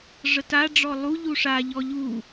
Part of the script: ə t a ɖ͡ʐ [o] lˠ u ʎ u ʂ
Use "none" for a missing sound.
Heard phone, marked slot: ɔ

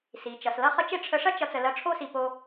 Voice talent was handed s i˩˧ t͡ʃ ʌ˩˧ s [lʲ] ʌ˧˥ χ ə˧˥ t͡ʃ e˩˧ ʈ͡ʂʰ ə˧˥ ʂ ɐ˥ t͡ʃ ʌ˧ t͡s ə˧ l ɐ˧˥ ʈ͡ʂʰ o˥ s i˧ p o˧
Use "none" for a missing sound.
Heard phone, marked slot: l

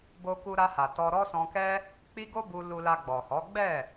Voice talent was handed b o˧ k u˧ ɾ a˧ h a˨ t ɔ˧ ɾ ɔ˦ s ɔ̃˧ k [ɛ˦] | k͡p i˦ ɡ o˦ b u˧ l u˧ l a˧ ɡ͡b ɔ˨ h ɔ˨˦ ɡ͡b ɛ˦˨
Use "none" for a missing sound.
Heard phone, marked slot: ɛ˦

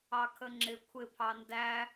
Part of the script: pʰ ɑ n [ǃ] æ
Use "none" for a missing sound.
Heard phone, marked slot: d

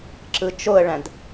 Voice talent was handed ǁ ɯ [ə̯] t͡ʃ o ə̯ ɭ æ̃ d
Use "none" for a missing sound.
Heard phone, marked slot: none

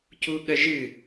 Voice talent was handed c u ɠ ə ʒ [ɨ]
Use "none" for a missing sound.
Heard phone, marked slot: ɨ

